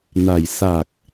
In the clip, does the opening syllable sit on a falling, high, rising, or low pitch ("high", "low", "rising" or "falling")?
low